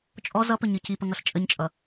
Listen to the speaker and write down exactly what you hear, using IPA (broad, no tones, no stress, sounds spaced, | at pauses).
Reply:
t͡ʃʼ ɔ z ʌ p ə ɲ ɨ c i p ə ŋ ʌ ɬ t͡ʃʼ ə ɲ t͡ʃʼ ʌ